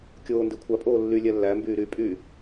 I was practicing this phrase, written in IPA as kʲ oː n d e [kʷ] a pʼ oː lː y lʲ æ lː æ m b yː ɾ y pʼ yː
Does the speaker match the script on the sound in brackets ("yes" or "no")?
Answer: no